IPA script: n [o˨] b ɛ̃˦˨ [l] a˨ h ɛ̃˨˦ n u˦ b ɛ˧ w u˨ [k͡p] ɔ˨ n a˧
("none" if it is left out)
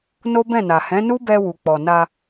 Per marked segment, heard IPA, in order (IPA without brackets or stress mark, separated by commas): o˦, n, k͡p